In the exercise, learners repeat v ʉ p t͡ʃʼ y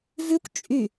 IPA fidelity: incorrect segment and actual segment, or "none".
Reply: p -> kʷ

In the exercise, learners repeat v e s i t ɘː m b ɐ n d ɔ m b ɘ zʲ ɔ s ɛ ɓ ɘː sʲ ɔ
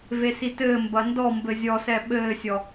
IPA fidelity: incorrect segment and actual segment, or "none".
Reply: none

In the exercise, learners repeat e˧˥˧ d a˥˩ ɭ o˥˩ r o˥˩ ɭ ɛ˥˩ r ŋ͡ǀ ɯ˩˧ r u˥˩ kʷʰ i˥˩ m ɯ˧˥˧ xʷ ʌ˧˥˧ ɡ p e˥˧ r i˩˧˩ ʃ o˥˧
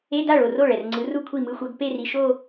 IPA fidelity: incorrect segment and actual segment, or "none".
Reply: none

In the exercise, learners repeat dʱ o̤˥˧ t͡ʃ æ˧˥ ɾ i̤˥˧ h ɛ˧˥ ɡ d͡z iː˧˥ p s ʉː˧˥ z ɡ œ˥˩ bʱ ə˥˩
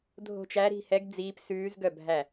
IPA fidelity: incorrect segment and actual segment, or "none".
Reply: ə˥˩ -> æ˥˩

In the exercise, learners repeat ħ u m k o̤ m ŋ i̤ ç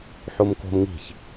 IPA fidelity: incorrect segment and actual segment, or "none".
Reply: none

